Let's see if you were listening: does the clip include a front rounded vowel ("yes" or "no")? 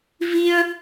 no